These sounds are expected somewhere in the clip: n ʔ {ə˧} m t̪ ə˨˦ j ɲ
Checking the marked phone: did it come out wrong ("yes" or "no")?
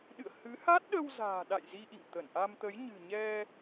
yes